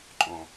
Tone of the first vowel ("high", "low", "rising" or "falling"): high